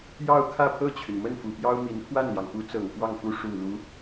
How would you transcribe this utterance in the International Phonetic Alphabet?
j ɑ˥˧ ʊ̯ kʰ ä˥˧ pʰ ɤ˥˩ t͡ɕʰ y˩ n m ə˥˩ n f u˨˩ p j ɑ˥ ʊ̯ m i˧˥ n kʰ w a˥˩ n l j ɑ˩ ŋ p u˧˥ t͡s ɤ˨˩ ŋ f w ɑ˥˩ ŋ f u˥ ʂ u˨˩ l u˧˥

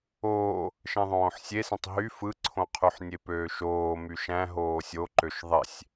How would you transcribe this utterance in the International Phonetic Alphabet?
oː | ʃ ẽ ðˤ õː ħ sʲ e s ẽ tˤ ɦ y f ɯ ǀʰ õ qʰ y ħ nʲ e p øː ʃ oː m y ʃ æ̃ ɦ oː sʲ o ǃ ø ʃ ðˤ e sʲ

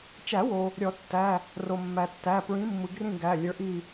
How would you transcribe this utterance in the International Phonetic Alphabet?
t͡ʃ æ˨˩˦ w o˩ | ɾʲ ɔ˨˩˦ tː æ˩˧˩ | r o˩ mː æ˩ tː æ˩˧˩ p ɹ ĩ˨˥ mː ɯ˩ ɡ r ĩ˦˨ ɡ æ˩˧˩ lʲ ə˞˨˥ ʔ i˦˨

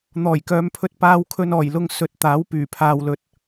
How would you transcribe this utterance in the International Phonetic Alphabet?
n̪ ɔː˨˩ j k œː˨˧ m pʰ ɵ˧ t̚ p aː˧ w kʰ ɵ˧ n ɔː˨˩ j l ʊ˧ ŋ s ɵ˨˥ t̚ t̪ aː˨˥ w p yː˨˩ pʰ aː˨ w l ɵ˨ t̚

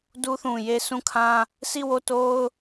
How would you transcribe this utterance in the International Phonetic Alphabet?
d u˦ θ ũ˨ j e˦ sʰ ũ˦˨ kʰ ã˦ | sʰ i˦˨ w o˦˨ t o˦ ʊ̯

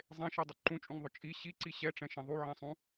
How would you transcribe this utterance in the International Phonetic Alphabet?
zˤ ẽ ʃ i dˤ ʏ ǃ ũ t͡ʃʼ ũ ŋ ðˤ ʊ t͡ʃʼ i ɕ i ǀ i ɕ ɛ ʈ͡ʂ ɛ̃ ʃ ẽ ðˤ u ʕ ɛ̃ sˤ ũ

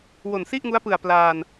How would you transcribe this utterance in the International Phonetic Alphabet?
w o˨˩ n s i˥˩ ʔ ŋ u˦˥ a̯ p ɯ˨˩ a̯ p l aː˧ n

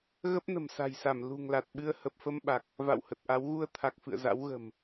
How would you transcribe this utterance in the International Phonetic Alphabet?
ɣ ə˦˥ p̚ n ə̤˨˩ m s a̤˨˩ j s a˧˩ m l ṳ˨˩ ŋ l a˨˩ t̚ ɓ ɨ˧ ə̯ h ə˨˩ p̚ f ə˧ m ɓ a˨˩ k̚ | v a̰˧˨ w h ə˨˩ t̚ ʔ a˨˦ w ɣ u˧ ə̯ t̪ʰ a˨˩ k̚ f ɨ̰˧˨ ə̯ z a̰˧˥ w ɣ ə̤˨˩ m

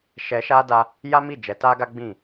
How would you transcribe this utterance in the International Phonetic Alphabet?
ʃ ɛ˧ ʃ a˦ d a˦ | j a˦ m i˦˨ d͡ʒ ɛ˨˦ t a˦ ɡ a˦ ɡ͡b ĩ˦˨

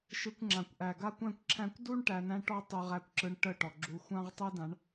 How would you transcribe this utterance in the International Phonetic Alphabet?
ʃ ɯ˧ kʷ ŋ͡ǁ ã˨ kʷ ʔ æ˨ ɡ a˦ kʷ æ̃˦ kʷ ǁʰ æ̃˦ kʷ d u˦ ɳ ʈ æ˧ n æ̃˦ ʈ ɔ˦ tˤ y˨ ʁ æ˧ kʷ ǁ ɯ˧ ɳ ʈ ə˦˨ ʈ ɔ˨ ɡ͡ǁ u˧ xʷ ã˦ ʁ tˤ ɯ˦ d ã˨˦ ɳ

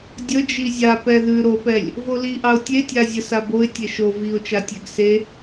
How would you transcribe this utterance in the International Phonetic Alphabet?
dʲ ə d͡ʒ i zʲ a p ɛ ð ʉ ɾ o p ɛ lʲ | v o l i ʔ ɑ ʊ̯ tʲ e tʲ a zʲ ə s a b o ɪ̯ tʲ e ʃ o v i ʊ̯ t͡ʃ a tʲ ɛ ɡ s e

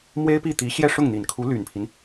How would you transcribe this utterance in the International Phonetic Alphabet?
m w e˥ ɪ̯ p i˥˩ t̪ i˧˥ ɕ j ɛ˥˧ ʂ ʊ˥˩ ŋ n̪ i˨˩ n kʰ u˧˥ l y˨˩ n pʰ i˦ n

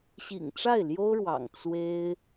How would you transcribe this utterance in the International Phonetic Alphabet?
ɕ ḭ˨˩ ŋ ʈ͡ʂ a˥˩ ɪ̯ l j o˥ ʊ̯ ɻ w ɑ̰˨˩ ŋ t͡s w e˥ ɪ̯

